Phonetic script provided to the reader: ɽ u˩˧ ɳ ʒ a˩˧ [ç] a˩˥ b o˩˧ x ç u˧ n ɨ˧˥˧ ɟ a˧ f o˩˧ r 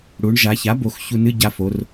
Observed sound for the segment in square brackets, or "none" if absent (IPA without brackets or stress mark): ç